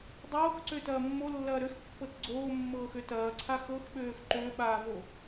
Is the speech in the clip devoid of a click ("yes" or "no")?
no